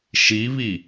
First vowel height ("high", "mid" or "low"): high